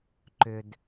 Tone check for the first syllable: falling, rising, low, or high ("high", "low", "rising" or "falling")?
low